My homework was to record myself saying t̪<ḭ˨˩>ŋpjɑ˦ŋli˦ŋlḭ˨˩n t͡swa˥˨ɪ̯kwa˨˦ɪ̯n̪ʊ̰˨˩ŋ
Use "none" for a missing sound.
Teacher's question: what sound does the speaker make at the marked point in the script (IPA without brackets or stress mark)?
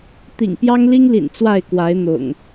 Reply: ḭ˨˩